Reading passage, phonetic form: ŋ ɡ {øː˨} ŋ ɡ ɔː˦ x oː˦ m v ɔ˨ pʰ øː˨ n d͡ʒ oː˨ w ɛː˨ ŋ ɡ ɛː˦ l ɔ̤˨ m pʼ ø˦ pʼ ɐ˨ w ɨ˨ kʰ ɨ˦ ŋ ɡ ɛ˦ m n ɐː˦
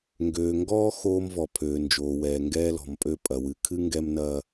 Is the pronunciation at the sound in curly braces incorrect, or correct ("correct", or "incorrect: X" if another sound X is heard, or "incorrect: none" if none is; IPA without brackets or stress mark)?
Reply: correct